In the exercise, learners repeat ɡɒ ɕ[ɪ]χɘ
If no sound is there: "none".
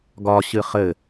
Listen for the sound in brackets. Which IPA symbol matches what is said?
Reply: ɨ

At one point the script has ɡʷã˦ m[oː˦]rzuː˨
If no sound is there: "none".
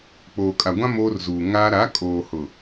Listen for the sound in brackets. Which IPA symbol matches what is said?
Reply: oː˦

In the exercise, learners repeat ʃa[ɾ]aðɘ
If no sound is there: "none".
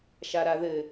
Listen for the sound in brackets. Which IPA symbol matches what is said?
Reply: ɾ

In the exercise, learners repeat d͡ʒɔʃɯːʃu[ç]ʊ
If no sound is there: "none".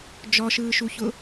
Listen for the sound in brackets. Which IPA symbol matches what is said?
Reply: ç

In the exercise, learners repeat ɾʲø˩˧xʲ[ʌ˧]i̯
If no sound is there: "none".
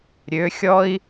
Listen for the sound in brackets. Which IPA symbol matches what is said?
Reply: ɔ˧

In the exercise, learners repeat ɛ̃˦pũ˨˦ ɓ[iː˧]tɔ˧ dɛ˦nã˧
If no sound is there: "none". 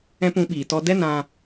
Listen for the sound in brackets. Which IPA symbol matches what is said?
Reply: iː˨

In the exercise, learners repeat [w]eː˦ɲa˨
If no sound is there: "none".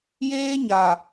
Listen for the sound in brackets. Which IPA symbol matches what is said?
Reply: j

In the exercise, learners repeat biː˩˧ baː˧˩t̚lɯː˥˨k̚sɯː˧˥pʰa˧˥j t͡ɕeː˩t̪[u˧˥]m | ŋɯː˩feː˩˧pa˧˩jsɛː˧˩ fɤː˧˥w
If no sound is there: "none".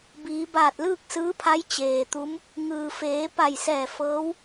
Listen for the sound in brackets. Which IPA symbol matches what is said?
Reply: u˧˥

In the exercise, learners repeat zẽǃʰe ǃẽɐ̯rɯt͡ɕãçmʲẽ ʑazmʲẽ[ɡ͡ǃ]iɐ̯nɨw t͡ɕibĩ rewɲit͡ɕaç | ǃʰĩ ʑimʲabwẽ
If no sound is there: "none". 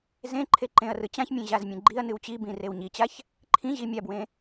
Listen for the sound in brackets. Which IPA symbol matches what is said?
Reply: ɡ͡ǃ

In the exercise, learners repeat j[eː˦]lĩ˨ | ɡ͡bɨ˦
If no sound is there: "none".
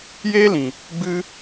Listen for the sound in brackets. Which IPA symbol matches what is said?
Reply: eː˦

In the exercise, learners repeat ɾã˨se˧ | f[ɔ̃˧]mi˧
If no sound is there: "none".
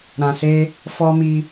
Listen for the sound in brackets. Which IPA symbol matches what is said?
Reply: ɔ˧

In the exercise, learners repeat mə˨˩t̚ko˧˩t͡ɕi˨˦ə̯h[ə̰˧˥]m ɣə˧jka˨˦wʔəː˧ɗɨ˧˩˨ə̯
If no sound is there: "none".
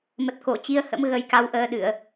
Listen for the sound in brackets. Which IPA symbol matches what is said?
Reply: ə̰˧˥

